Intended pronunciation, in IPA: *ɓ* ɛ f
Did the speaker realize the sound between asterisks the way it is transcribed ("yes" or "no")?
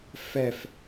no